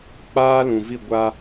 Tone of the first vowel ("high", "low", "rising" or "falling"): high